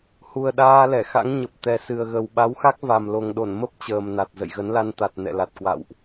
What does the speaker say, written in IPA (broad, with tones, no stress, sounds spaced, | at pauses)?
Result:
h u˨˩ ə̯ ɗ aː˧ l ɛ˧˩ x a̰˧˥ ŋ ɲ ə˨˩ p̚ t̪ ɛ˨˩ s ɨ˨˩ ə̯ ɣ ə˨˩ w ɓ a˨˦ w x a˦˥ k̚ v a˨˩ m l o˨˩ ŋ ɗ o˧˩ n m ə˦˥ p̚ t͡ɕ əː˨˩ m n a˨˩ t̚ z ə̰˧˨ j ɣ ə˨˦ n l a˧ n t̪ a˨˩ t̚ n ɛ̰˧˨ l a˨˩ t̚ k w a̰˧˨ w ʔ